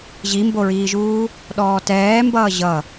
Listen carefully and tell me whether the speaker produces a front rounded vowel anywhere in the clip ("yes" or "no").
no